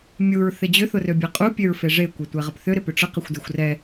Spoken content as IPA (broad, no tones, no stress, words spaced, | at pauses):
mʲuɹθɪ d͡ʑʏθʊrøbʲa qʼupʲøɹfe ʐekʷɛtʷɛʁəp θʏɾɪpʏ ʈ͡ʂəqɪxʷdexʷ rɛ